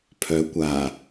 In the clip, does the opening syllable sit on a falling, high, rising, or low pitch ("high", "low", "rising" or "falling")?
rising